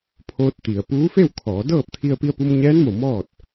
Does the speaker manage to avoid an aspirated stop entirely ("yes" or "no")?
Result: no